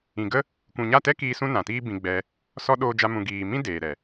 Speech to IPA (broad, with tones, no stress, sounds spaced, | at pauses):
ĩ˨ ɡ ə˦ | kʷ ũ˨ ɲ a˦˨ t ɛ˦ k iː˧ s ũ˦ n ã˨ t iː˦ b ĩ˧ ɡ͡b ɛ˧ | s ɔ˦ ɗ oː˦ d͡ʒ a˦ m ũ˧ ɡ iː˨ m ĩ˦ d eː˨ ɾ ɛ˨